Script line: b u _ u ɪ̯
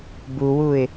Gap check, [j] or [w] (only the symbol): w